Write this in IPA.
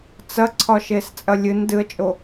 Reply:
t͡sɐǀʰɒʃes t͡sʼɐlʲɨn dɨə̯t͡ʃʼo

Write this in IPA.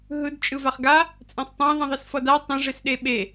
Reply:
ɦɯdt͡ʃʼɯvaχ ɡa | t͡sʼɛ̃sˤtˤɛ̃ ðˤĩðˤisfʌda tˤẽʐesɗe ɓe

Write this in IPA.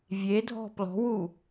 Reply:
vʲedʱɔ̤ plɔ̤wu

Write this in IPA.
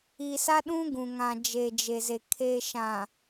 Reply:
i˨ sa˦ɗũ˦ɡũ˨ ŋã˨d͡ʒe˨d͡ʒe˨ze˨ kʰe˨ʃã˨

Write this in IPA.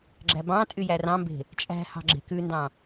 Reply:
ɡ͡ǁæbɑ̃tʼy jærɑ̃mbe̤ | t͡ʃʼæ̤ hɑ̤ɡ͡ǁe̤kʉndɑ̃

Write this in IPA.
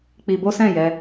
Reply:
k͡pi˧bo˦sɛ̃˦˨jɛ˧

